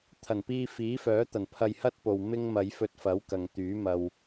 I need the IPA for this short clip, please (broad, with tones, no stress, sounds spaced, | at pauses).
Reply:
t̪ʰ ɐ˨˩ n p iː˧ f iː˨˥ f œː˨˥ t̪ ɐ˨˩ n pʰ ɐ˧ j h ɐ˥ t̚ p o˨ w m ɪ˥ ŋ m ɐ˨˧ j f ɵ˧ t̚ f ɐ˨˥ w k ɐ˨ ŋ t̪ yː˨˥ m ɐ˧ w